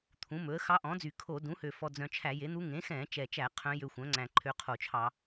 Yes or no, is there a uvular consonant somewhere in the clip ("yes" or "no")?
yes